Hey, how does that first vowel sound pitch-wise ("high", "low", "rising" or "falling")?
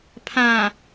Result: low